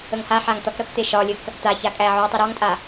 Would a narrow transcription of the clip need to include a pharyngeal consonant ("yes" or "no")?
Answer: yes